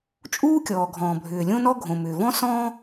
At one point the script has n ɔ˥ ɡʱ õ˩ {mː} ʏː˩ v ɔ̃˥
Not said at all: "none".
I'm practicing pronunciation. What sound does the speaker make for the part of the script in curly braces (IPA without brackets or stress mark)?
m